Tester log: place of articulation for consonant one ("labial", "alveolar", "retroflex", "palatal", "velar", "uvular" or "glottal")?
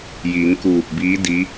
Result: palatal